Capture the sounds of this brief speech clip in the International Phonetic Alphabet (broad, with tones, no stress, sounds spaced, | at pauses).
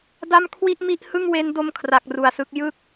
d a˥˩ m kʰ w i˥˩ ʔ m i˥˩ ʔ h ɯ˥˩ ŋ w e˦˥ n d o˦˥ m kʰ r a˨˩ k̚ r u˨˩ a̯ s ɯ˦˥ k̚ j ɯ˥˩ k̚